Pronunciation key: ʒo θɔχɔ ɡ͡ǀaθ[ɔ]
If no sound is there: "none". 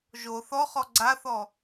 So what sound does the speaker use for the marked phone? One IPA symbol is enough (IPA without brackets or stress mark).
ɔ